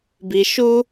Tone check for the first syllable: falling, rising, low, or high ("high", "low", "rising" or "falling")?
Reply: low